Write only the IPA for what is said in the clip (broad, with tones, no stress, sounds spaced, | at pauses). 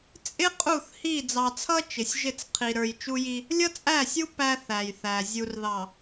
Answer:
t͡sʼ ɪ˦ qʼ u˦˨ θ h i˦˨ d͡z ɑ˨ t͡sʰ ʌ˦ t͡ʃ ɪ˨ sʲ ʒ ɪ˦˨ t͡s qʰ i˨ ɾ ə˞˨ j t͡ʃ u˦ j i˦ | lʲ ʌ˦ t͡sʼ æ˦˨ sʲ u˦ p æ˦ θ æ˨ j θ æ˨ zʲ u˨ r ð ɑ˨